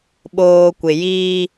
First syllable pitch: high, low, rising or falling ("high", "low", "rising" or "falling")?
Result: low